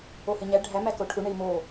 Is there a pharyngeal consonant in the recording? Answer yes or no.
no